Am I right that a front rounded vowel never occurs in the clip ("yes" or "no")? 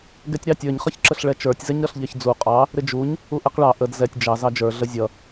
yes